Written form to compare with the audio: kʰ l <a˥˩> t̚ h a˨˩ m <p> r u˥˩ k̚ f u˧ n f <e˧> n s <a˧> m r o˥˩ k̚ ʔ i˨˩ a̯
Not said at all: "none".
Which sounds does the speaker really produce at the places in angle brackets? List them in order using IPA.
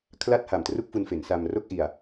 a˥˩, t, e˩˦, a˧

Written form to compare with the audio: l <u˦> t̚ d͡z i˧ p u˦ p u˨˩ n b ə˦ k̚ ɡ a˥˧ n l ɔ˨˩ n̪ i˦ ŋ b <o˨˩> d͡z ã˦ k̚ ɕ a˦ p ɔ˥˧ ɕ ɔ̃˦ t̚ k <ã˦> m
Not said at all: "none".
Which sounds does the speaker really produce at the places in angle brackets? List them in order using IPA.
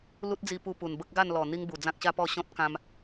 u˦, u˨˩, ã˦

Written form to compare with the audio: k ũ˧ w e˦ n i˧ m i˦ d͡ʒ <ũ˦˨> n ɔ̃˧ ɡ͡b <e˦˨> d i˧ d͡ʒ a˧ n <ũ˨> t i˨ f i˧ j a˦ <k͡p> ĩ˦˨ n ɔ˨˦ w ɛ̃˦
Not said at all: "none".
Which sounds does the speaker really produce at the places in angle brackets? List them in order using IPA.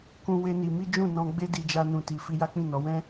ũ˦˨, e˦, ũ˨, k͡p

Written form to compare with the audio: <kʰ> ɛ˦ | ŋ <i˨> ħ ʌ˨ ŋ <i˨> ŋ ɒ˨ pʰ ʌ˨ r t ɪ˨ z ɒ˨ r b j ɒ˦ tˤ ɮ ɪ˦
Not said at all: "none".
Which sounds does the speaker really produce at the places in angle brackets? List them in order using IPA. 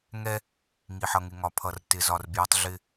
ŋ, i˨, ɪ˨

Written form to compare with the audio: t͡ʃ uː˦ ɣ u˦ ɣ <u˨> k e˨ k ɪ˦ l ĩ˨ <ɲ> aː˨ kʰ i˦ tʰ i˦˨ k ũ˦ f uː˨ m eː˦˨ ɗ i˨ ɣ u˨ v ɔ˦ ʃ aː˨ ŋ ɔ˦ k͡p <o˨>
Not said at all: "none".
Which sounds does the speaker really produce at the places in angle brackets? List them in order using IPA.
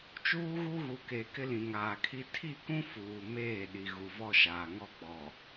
u˨, ŋ, ɔ˨

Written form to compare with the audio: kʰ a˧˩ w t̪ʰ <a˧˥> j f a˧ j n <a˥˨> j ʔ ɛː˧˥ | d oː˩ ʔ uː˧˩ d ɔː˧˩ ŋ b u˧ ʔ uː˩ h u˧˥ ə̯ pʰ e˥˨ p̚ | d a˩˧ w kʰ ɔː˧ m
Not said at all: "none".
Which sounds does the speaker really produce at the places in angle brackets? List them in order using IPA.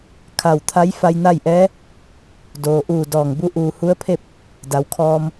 a˧˥, a˥˨

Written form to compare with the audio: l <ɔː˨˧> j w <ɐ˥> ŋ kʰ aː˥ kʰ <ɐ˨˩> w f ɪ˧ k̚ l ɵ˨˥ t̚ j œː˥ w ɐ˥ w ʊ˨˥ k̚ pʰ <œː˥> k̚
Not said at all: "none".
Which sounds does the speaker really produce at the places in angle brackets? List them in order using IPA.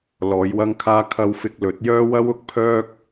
ɔː˨˧, ɐ˥, ɐ˥, œː˥

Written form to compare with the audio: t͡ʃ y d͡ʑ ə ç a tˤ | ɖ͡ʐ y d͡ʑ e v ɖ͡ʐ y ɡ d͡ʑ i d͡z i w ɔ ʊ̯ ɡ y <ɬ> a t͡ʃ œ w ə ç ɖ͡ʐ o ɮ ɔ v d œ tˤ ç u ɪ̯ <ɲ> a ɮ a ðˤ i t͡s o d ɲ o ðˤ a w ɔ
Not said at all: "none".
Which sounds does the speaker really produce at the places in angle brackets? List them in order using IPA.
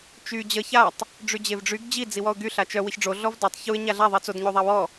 ɬ, ɲ

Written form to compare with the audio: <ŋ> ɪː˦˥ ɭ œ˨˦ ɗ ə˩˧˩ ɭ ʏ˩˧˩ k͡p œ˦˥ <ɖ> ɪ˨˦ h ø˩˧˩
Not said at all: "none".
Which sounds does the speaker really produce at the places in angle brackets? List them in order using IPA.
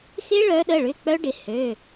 x, ɖ

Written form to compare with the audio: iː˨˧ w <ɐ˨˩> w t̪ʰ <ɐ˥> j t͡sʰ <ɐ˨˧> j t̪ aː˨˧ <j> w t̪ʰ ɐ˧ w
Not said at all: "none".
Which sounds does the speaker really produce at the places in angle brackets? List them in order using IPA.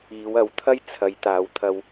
ɐ˨˥, ɐ˥, ɐ˨˧, none

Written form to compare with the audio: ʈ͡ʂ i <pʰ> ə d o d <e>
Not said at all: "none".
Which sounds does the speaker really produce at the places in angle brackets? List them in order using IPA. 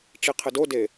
qʰ, e

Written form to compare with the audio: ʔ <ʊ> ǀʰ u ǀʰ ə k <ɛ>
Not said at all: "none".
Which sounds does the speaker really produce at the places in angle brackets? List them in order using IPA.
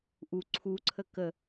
u, ə

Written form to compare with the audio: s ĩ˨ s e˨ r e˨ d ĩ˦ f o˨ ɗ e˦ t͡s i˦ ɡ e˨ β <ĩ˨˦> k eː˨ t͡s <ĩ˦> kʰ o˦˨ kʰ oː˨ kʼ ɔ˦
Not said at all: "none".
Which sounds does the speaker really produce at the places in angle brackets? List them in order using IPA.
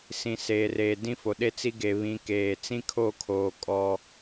ĩ˨˦, ĩ˦

